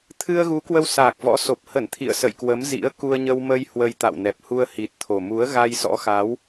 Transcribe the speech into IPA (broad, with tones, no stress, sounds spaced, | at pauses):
t̪ʰ ɨ˧ ə̯ ɣ u˨˦ k w ə˧ w s aː˨˩ k̚ v ɔ̰˧˥ s o˨˩ p̚ h ə˧˩ n t̪ʰ ḭ˧˨ ə̯ s ə̰˧˨ j k w ə˨˦ m z ḭ˧˥ ə̯ k u˧ ə̯ ɲ ə˧ w m ə˧ j h w ə˧ j t̪ a̰˧˨ w n ɛ˨˩ p̚ h u˧ ə̯ h i˨˩ t̚ t̪ʰ o˨˩ m u˨˦ ə̯ ɣ a˧ j s ɔ̰˧˥ x a˨˦ w